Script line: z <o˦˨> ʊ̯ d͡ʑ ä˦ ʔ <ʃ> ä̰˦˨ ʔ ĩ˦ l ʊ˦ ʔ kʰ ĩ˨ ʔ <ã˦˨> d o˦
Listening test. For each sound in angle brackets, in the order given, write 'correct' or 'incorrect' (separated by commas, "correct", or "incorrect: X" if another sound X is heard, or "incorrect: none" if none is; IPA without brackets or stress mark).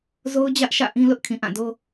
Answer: incorrect: o˦, correct, correct